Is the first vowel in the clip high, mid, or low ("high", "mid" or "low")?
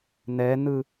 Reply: mid